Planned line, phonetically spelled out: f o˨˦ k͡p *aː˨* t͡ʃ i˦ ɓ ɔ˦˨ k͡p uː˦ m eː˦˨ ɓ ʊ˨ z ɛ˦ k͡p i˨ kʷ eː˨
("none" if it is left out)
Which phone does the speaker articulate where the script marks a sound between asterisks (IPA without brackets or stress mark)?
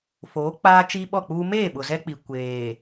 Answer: aː˦